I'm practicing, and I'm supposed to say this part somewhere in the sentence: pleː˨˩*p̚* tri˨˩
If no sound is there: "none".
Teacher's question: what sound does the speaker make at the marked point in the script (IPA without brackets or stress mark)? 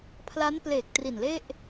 k̚